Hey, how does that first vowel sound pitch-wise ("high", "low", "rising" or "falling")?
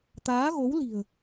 rising